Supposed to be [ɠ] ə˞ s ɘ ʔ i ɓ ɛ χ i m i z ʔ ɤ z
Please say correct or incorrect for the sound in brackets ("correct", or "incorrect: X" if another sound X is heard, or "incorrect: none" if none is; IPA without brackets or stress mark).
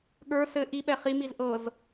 correct